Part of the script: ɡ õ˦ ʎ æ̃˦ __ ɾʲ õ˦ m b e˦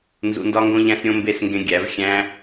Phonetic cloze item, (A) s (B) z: A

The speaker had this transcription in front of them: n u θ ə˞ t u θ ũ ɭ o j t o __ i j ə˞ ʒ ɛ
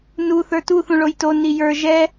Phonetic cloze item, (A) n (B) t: A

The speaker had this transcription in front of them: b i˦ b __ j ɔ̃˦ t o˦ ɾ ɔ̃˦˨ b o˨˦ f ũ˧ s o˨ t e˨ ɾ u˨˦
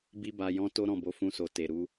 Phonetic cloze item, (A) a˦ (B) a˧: B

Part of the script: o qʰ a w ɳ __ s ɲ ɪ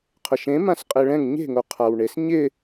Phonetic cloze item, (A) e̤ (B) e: B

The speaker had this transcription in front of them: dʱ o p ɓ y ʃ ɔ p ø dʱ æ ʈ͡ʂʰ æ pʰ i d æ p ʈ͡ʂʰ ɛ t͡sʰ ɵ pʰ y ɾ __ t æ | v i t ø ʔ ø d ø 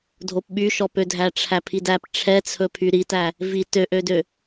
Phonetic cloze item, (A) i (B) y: A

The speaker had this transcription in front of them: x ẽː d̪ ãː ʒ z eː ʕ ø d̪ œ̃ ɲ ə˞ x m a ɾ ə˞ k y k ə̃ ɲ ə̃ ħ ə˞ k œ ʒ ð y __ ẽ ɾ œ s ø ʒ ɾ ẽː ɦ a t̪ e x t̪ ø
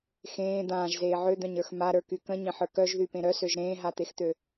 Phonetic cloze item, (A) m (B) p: B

